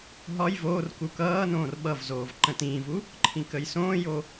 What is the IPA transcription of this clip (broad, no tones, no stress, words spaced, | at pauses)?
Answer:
ɦɒj voːr kukʌːnõːr ɓʌvzoːv ǃə̃tĩːvu | ǃʰĩkəjsõːjo